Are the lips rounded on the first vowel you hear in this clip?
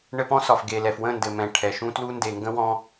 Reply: no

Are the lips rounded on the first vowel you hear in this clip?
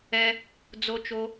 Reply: no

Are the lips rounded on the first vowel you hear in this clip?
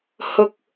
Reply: yes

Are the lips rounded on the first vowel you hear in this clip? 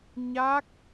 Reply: no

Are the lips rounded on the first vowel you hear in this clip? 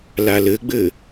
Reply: no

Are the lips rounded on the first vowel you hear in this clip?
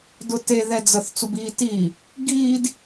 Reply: yes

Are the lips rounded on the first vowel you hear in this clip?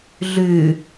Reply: yes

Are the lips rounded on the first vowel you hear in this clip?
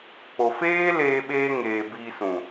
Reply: yes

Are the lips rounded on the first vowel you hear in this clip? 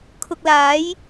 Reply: yes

